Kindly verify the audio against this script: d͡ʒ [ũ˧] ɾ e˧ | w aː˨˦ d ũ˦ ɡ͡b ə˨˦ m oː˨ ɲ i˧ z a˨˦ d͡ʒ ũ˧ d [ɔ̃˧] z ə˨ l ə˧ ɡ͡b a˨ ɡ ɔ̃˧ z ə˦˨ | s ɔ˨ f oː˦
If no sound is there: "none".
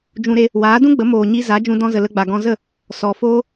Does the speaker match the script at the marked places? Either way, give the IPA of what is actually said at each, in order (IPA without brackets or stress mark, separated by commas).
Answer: ũ˧, ɔ̃˧